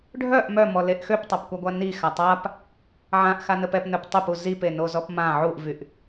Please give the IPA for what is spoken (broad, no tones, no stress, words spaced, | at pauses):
ɖʱœʔ mœmɔleʔ xøptˤapkʷaɡʷa nixa tˤap | ʕãʔxanəp ɛpnœp tˤɛpu zipenozɔp mã ʕuʔvyʔ